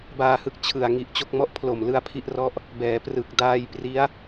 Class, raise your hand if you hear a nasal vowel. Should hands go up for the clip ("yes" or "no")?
no